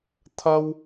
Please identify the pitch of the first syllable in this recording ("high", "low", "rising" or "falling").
high